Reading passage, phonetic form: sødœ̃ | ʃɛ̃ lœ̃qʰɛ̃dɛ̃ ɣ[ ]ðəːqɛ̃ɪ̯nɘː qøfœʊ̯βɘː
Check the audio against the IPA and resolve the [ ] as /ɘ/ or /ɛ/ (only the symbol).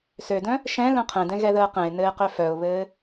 ɛ